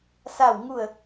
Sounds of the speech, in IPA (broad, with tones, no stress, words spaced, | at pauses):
sa˥˨wŋu˥˨ə̯